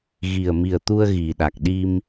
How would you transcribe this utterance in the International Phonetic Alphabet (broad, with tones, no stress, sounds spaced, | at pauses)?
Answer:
ɣ i˨˩ ə̯ m i˨˩ ə̯ t̪ u˧ ə̯ ɣ i˨˩ ɗ a˨˩ k̚ ɗ i˧ m